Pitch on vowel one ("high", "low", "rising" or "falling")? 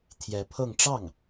rising